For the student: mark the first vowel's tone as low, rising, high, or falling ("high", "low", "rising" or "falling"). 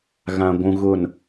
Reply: low